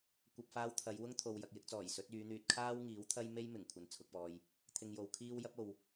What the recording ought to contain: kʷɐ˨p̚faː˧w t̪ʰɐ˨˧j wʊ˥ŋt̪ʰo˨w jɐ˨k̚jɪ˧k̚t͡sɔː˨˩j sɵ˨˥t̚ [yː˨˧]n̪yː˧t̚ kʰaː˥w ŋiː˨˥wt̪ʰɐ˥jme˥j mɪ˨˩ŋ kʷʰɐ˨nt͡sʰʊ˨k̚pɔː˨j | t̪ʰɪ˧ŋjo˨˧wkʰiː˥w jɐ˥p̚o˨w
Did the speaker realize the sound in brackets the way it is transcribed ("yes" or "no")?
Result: yes